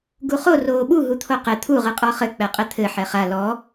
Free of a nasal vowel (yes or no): yes